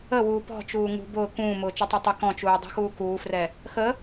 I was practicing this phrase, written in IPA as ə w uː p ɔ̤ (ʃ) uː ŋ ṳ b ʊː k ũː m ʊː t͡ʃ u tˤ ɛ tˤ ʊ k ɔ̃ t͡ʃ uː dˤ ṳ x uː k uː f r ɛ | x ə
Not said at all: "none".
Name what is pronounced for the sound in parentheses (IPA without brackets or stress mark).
t͡ʃ